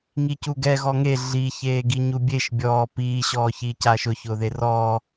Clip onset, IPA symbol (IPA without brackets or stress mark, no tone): ŋ